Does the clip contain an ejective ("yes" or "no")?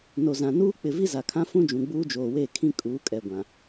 yes